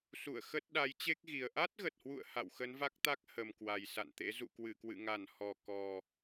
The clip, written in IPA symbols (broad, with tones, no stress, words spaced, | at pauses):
sṵ˧˨ə̯xə˦˥t̚ ɗa˨˦jt͡ɕe˦˥k̚ɣi˨˩ə̯ ʔa˦˥t̚ɣə˨˩t̚hwṵ˧˨ə̯ ha̰˧˨wxə˨˦nva˦˥k̚t̪a˦˥k̚ hə˨˩m kwa˨˩jsa̰˧˨nt̪ḛ˧˥ zṵ˧˨kwɨ˧˩kwɨ̰˧˨ŋa˧˩n hɔ˨˩kɔ˨˩